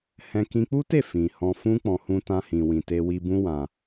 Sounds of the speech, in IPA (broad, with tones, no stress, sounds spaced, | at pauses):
h ɛ̃˧ k ĩ˧ k͡p u˦ t e˦˨ f ĩ˨ h ɔ̃˧ f ũ˦ k͡p ɔ̃˧ h ũ˧ t ã˧ h ĩ˨ w ĩ˨ t e˧ w i˧ b ũ˦ w ã˧